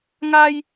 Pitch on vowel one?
high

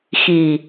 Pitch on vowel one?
low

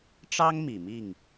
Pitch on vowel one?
high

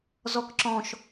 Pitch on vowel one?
high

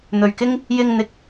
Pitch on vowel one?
low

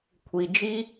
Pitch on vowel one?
low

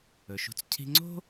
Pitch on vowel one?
low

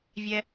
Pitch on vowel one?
high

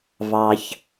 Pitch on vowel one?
low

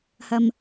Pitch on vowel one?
low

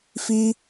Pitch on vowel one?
high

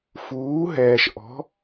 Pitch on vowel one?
rising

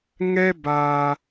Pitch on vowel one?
high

